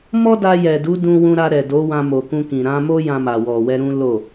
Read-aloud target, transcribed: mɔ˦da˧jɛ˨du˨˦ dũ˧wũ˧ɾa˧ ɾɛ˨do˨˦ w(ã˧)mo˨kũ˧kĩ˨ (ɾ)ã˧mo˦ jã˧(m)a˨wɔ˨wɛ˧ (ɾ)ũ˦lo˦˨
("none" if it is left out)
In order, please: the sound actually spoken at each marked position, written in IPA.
ã˧, ɾ, m, ɾ

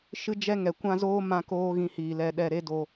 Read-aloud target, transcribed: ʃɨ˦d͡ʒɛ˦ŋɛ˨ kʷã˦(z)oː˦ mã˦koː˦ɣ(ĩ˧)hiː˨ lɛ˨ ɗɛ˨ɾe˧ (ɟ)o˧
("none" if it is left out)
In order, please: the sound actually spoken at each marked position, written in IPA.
z, ĩ˧, d

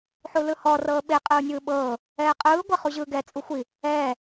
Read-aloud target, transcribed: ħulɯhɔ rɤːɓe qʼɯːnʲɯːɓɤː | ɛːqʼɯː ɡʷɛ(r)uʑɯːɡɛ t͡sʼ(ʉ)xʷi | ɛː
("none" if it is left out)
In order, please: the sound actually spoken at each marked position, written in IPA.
χ, u

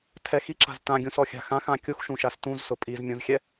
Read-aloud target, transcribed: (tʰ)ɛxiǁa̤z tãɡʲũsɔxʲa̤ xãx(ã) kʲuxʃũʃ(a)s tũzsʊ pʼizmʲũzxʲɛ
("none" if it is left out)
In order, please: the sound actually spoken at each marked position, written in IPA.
tʰ, ã, a

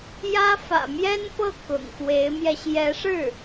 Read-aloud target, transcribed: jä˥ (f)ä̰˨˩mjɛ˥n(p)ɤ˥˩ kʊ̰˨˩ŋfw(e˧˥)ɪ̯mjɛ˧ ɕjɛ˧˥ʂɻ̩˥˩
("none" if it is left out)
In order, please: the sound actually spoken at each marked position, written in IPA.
f, p, e˧˥

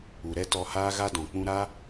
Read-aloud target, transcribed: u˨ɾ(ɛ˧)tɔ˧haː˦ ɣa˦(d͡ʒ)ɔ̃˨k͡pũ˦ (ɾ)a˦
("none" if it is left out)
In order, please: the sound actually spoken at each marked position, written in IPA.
ɛ˦, d, ɾ

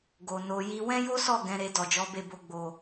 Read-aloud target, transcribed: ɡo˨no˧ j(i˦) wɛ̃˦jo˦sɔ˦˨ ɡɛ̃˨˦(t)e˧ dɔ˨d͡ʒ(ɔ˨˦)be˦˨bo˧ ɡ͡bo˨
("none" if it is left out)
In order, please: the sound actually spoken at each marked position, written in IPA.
i˧, ɾ, ɔ˨˦

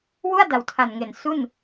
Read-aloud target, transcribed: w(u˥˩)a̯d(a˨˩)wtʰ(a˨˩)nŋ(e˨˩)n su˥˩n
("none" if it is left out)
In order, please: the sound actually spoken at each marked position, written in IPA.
u˥˩, a˨˩, a˨˩, e˨˩

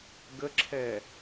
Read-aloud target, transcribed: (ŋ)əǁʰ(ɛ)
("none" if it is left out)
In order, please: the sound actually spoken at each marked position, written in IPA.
ɡ, ɛ

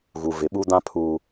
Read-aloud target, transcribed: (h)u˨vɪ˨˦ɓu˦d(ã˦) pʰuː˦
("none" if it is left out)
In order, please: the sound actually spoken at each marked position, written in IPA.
ɣ, ã˦

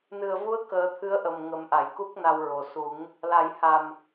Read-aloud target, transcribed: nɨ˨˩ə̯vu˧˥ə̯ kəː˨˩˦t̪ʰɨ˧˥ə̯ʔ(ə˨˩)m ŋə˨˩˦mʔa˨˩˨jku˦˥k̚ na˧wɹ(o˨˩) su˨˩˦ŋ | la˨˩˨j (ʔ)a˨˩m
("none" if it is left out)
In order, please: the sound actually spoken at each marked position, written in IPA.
ə˨˩, o˨˩, h

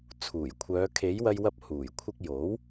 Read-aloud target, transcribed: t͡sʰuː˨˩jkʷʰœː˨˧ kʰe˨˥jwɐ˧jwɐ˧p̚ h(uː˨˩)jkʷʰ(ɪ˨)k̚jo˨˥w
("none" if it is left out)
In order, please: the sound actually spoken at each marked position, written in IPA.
uː˨˩, ɪ˧

